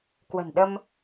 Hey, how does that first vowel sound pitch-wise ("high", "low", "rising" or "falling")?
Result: low